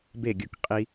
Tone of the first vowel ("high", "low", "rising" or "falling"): falling